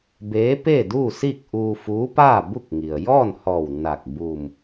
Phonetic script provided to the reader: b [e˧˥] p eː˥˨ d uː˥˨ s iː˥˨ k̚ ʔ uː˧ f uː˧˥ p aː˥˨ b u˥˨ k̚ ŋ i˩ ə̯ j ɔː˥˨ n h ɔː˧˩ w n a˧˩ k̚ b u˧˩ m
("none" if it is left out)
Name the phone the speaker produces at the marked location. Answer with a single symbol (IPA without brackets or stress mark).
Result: eː˧˥